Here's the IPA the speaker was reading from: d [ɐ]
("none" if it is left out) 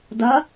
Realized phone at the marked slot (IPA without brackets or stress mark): ɐ